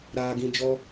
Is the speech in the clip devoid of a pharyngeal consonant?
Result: yes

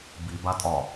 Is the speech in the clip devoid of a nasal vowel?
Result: yes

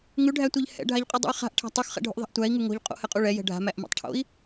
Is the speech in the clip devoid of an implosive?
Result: yes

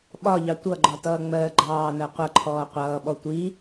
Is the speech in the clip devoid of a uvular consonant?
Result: no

